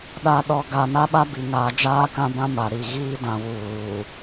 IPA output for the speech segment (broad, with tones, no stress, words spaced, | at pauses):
ɗa˨ ɗɔ˨ɡa˨ na˦ɓa˦bi˨ ŋaː˨d͡ʒaː˦kã˦bã˦ ma˨ɾi˨ ɣiː˦dã˨ wuː˨